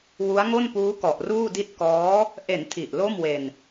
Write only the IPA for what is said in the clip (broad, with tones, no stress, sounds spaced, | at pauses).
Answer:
w u˦˥ a̯ ŋ o˥˩ n p uː˦˥ k ɔ˨˩ ʔ r uː˥˩ d i˥˩ t̚ k ɔː˦˥ | ʔ e˩˦ n tʰ i˨˩ ʔ l o˥˩ m w e˧ n